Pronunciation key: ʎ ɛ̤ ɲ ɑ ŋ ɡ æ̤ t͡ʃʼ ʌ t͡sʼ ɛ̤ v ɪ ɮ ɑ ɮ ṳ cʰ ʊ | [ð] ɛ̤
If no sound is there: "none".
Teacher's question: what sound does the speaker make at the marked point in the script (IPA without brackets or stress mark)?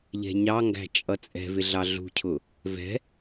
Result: v